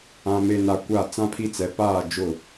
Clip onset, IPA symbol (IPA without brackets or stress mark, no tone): ã